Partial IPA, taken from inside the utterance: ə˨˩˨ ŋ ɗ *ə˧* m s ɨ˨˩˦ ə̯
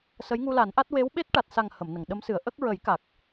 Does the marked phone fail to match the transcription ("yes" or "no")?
yes